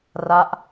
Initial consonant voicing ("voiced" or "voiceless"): voiced